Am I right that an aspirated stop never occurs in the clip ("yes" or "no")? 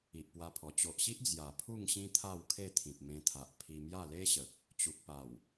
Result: no